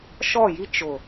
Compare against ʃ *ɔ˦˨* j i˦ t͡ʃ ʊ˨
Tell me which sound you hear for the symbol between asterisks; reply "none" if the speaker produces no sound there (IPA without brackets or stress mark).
ɔ˦˨